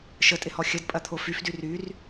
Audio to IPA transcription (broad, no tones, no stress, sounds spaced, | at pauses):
ʃ ə tʼ ɪ h ɔ xʲ ə d pʼ ɐ t̪ʰ o f y f d y r y r